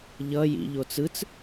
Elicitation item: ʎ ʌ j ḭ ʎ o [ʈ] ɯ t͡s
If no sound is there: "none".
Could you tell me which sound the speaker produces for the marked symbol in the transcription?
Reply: t͡s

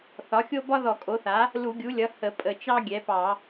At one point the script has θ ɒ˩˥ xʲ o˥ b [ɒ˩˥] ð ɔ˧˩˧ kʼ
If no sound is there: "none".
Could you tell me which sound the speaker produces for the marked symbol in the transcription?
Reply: ɒ˥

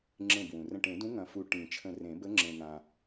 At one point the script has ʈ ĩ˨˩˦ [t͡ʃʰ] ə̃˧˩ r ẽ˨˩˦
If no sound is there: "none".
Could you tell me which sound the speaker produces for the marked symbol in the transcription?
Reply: t͡ʃʰ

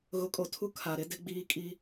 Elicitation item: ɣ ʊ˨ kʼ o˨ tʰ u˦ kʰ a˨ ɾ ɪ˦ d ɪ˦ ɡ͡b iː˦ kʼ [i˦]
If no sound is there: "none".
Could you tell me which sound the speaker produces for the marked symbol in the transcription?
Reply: i˦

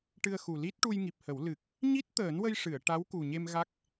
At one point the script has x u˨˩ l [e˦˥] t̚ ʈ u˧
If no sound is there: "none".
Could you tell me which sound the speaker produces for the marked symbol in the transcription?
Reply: i˦˥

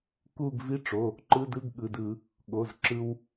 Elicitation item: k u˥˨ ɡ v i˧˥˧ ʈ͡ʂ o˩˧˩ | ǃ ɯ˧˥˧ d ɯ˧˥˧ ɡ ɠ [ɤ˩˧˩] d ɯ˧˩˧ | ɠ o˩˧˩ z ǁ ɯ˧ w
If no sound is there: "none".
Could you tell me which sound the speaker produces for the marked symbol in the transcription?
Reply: ɯ˩˧˩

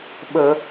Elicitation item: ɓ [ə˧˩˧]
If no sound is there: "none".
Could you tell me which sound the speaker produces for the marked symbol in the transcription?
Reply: ə˧˩˧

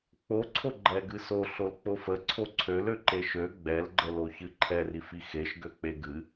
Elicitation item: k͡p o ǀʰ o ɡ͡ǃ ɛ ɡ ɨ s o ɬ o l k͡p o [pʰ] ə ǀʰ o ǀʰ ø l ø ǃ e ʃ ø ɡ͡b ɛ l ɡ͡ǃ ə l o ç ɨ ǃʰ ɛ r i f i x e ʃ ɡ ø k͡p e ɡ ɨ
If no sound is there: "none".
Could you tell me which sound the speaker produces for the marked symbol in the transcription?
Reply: f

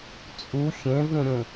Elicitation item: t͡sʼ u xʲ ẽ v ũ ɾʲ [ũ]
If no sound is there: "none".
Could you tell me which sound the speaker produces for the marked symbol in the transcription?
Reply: ũ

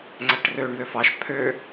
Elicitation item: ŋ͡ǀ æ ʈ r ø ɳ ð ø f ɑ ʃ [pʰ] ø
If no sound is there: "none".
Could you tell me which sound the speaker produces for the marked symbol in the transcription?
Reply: pʰ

